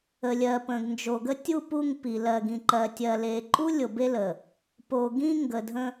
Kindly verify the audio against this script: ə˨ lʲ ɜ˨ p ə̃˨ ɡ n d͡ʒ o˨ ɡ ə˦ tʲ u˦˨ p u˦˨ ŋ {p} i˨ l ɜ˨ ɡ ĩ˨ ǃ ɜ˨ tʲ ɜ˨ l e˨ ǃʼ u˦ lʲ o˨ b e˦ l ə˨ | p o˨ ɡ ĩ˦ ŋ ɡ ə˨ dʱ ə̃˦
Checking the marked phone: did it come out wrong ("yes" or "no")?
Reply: no